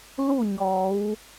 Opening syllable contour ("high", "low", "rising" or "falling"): falling